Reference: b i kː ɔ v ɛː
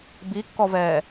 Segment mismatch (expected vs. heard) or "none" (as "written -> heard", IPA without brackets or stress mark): none